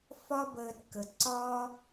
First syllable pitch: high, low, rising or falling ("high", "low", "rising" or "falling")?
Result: high